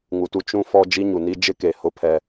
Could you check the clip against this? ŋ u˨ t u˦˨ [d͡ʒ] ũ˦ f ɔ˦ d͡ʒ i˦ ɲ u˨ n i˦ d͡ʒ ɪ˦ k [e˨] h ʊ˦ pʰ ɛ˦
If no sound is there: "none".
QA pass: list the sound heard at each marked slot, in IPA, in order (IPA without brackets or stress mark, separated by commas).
t͡ʃ, e˨